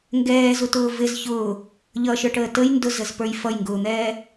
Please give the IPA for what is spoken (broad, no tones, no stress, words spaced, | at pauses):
ŋɡɛːzutʊː vɪz çʊː | ʎʌʃə˞ʈəː təj ndʊzəzpə˞j fʌjŋɡʊːn̪ɛː